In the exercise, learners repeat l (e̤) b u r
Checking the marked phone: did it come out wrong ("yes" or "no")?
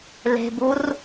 no